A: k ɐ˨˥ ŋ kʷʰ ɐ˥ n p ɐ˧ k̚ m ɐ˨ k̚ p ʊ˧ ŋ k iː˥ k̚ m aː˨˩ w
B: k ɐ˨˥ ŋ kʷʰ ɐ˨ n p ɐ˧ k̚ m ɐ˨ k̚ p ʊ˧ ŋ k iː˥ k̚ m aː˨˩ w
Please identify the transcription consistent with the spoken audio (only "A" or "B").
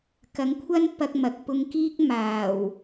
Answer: A